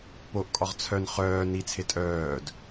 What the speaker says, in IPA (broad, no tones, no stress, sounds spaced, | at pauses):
p o ʔ kʼ ɒ ʁ t͡sʰ œ n χ œː n i t͡sʰ e tʼ œː d